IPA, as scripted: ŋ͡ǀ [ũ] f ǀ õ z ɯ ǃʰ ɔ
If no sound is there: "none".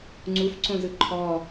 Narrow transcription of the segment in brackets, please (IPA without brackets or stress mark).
u